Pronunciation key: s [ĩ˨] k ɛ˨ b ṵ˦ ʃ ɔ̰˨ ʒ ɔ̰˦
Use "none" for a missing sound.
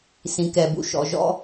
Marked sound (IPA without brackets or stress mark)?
ĩ˨